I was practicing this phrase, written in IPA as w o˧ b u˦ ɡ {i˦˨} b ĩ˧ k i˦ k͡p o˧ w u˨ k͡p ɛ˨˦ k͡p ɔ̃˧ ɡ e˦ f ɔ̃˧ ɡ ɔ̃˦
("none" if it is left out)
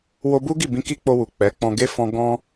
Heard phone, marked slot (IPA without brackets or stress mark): i˦˨